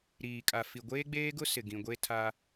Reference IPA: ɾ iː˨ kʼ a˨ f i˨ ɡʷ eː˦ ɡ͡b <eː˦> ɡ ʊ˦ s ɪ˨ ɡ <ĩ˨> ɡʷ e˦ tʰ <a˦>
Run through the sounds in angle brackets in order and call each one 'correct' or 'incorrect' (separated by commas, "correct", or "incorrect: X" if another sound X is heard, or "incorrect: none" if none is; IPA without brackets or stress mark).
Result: correct, correct, correct